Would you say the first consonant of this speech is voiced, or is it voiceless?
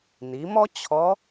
voiced